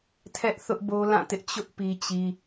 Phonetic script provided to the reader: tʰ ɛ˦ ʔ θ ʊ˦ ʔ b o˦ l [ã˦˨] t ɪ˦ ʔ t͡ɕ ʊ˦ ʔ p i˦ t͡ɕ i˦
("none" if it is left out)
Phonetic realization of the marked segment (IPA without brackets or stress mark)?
ã˦˨